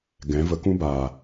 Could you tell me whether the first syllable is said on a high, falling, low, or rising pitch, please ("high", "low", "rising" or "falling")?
rising